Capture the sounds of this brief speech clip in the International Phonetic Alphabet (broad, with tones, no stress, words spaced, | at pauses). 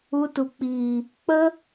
u˧tu˨k͡piː˨ | k͡pə˦